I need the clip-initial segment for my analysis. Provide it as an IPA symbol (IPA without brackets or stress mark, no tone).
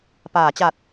p